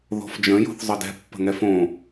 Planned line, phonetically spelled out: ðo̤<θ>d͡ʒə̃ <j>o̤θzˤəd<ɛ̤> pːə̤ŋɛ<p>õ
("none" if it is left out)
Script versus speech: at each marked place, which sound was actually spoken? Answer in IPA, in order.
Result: f, j, ɛ̤, f

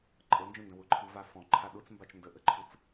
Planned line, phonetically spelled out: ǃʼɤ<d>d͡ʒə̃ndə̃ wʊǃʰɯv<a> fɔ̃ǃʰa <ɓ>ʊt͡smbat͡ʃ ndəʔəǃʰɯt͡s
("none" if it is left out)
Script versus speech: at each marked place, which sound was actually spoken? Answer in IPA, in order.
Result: n, a, ɗ

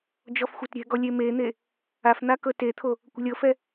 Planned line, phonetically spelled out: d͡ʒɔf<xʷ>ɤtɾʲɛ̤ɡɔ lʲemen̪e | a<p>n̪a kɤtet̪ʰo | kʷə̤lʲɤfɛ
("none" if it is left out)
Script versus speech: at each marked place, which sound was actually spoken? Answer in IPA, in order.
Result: xʷ, f

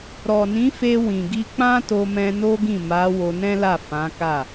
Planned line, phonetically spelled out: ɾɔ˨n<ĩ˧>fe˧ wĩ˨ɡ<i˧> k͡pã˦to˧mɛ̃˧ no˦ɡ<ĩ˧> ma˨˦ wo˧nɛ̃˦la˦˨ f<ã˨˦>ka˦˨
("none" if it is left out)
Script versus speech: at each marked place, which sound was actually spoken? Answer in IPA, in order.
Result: ĩ˨˦, i˧, ĩ˦˨, ã˨˦

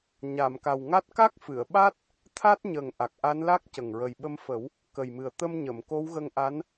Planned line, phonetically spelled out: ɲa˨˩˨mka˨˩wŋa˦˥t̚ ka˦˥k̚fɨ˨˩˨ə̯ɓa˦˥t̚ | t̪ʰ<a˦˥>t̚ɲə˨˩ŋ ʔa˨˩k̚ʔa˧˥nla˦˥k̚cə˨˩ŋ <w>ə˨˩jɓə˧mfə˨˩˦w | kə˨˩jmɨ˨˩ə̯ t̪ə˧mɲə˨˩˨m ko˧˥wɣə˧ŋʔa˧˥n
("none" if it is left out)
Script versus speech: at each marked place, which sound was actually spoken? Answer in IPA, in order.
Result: a˦˥, ɹ

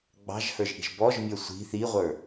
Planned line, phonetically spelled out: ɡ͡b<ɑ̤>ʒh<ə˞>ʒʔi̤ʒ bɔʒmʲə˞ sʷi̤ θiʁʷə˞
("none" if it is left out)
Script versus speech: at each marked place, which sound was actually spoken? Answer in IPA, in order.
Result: ɑ̤, ə˞

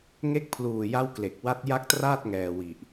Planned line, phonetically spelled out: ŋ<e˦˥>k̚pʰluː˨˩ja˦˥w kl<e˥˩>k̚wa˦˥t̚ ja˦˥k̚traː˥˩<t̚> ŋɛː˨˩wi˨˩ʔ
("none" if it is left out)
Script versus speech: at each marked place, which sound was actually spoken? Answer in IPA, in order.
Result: e˦˥, e˨˩, t̚

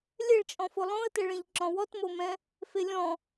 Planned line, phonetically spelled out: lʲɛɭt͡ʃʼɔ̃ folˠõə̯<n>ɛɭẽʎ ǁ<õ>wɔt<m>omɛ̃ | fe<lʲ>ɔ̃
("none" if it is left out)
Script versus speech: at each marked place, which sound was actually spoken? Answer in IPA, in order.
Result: t, ɔ̃, m, lʲ

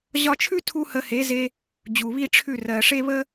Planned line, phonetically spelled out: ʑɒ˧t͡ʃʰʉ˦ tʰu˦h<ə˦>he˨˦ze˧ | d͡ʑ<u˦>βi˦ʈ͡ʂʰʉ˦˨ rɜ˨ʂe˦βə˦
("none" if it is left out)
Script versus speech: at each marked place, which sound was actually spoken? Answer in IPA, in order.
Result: ə˧, u˨

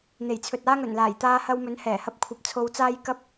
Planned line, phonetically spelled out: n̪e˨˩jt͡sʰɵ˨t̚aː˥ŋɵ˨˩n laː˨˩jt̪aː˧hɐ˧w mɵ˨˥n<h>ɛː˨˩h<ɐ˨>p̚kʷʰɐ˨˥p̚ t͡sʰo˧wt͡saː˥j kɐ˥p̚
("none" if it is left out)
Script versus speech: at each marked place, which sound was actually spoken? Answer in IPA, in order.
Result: h, ɐ˧

